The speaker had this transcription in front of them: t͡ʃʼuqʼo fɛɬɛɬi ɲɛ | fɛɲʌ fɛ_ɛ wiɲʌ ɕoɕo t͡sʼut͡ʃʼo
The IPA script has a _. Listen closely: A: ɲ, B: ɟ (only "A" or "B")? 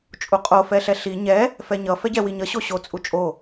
B